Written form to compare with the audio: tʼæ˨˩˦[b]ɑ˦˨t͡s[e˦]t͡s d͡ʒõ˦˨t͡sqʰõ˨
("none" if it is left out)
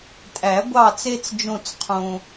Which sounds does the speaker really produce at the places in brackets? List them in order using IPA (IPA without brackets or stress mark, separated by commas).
ɡʷ, e˦